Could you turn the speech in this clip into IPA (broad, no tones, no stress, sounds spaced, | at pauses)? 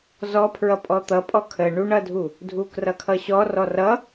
z ɔ pʰ ɹ ʌ pʼ ɔ t̪ ʌ pʼ ɔ kʰ ə ɳ u ɳ ʌ dʱ u | dʱ u k r ʌ kʰ ʌ ɕ ɔ r ɔ r ʌ